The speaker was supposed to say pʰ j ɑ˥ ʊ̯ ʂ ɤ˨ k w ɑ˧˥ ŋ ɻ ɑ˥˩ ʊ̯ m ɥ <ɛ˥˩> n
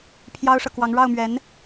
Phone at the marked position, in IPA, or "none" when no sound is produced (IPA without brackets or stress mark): ɛ˧˥